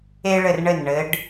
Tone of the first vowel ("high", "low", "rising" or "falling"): high